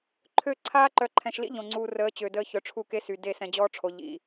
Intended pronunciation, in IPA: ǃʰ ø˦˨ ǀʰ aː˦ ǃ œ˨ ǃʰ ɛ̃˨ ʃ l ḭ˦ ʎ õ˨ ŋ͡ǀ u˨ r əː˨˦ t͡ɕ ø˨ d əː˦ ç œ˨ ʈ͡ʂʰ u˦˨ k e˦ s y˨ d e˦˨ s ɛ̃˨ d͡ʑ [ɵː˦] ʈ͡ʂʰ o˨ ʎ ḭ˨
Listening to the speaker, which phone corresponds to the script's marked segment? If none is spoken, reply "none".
ɔː˦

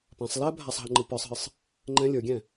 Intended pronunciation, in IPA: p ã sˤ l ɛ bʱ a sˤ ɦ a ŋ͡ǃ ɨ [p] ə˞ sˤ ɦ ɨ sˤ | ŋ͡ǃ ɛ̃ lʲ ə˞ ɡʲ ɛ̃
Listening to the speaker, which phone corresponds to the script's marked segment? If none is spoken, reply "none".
p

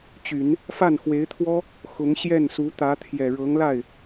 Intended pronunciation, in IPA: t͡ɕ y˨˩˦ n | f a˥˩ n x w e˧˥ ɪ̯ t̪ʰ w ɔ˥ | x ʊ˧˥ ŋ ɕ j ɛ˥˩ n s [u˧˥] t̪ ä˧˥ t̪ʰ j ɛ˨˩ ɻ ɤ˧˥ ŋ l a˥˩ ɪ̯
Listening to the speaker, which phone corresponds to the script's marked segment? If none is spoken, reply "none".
u˧˥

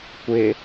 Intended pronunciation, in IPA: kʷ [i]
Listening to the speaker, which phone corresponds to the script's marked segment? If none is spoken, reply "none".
ɪ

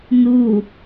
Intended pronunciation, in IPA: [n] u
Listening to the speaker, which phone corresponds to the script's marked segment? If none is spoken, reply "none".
n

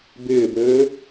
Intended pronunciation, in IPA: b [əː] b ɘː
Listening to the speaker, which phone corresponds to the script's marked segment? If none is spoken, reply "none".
ɪː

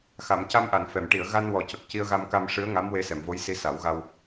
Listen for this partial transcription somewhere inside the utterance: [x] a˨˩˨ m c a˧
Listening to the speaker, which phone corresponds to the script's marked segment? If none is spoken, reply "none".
x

